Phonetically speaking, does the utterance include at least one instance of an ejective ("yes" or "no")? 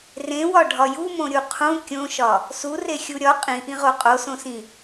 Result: yes